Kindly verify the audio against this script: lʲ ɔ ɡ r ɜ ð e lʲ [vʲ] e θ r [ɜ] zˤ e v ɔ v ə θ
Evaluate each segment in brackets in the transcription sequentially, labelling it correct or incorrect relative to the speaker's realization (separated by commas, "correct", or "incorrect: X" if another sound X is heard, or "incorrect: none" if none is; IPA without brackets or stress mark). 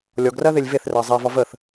incorrect: v, correct